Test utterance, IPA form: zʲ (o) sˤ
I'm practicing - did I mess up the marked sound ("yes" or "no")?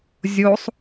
no